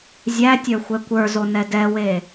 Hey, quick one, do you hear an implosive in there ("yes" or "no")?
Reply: no